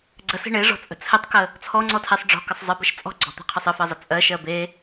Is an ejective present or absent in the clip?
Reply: present